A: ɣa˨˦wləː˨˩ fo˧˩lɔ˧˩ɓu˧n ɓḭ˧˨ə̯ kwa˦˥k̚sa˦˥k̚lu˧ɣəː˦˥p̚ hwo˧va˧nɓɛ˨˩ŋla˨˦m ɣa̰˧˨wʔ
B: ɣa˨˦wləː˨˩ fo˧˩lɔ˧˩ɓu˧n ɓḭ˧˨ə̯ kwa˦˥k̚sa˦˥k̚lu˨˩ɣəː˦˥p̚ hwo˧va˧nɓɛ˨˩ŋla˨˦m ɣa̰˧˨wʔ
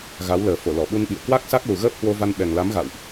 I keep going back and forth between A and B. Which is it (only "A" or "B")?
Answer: B